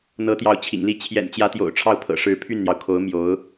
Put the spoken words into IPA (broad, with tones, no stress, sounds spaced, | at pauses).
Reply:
n̪ ɤ˧˥ t̪ j ɑ˧˥ ʊ̯ t͡ɕʰ ḭ˨˩ ŋ l i˥˩ t͡ɕʰ j ɛ̰˨˩ n t͡ɕ j ä˧˥ t̪ j o̰˨˩ ʊ̯ ʈ͡ʂʰ ɑ˥˩ ʊ̯ pʰ ɤ̰˨˩ ʂ ɻ̩˧˥ pʰ y˥˩ n n̪ j ɑ˩ ʊ̯ kʰ o˧˥ ʊ̯ m j o˧˥ ʊ̯